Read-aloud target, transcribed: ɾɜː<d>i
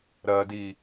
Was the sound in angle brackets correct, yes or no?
yes